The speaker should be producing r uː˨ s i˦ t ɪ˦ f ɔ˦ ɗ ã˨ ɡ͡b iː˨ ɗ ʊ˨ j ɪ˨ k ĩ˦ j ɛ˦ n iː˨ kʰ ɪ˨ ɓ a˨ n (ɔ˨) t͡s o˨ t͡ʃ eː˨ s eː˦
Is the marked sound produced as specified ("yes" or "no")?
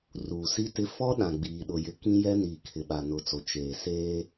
no